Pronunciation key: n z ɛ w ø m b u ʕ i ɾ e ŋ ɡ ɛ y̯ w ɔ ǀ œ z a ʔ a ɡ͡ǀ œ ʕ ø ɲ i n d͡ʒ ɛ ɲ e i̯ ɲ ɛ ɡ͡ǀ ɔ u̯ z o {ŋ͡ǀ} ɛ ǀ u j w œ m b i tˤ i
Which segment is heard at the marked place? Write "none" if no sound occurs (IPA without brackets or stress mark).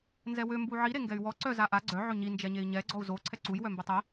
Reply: ǀʰ